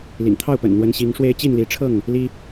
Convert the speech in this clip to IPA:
l ḭ˨˩ ŋ t̪ʰ ɑ˥˨ ʊ̯ p ə̰˨˩ n n̪ w ə˨˦ n ɕ i˨˦ ŋ ʂ w e˦ ɪ̯ t͡ɕ i˥˨ n l i˨˦ ʈ͡ʂʰ ɤ˥˨ ŋ | l i˦

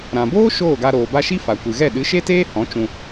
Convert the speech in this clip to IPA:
ɾ ã˨ b oː˦ ʃ oː˦˨ ɡ a˧ ɾ oː˨ b a˧ ʃ i˦ f a˨ kʷ ɨ˨ ɣ ɛ˦˨ ɗ ɨ˨˦ ʃ e˦ t eː˦ h ɔ̃˨˦ t͡ʃ ũ˧

